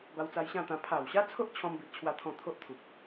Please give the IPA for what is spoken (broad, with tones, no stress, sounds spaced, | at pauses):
b a˧ w t͡s a˧ j ɕ ã˥˧ t̪ ã˧ pʰ a˨˩ w ɕ a˦ t͡sʰ o˦ ʔ t͡ɕʰ ɔ̃˦ m b i˦ ʔ t͡ɕʰ w a˦ t̪ʰ ɔ̃˥˧ t̪ʰ o˦ ʔ t̪ʰ u˨ k̚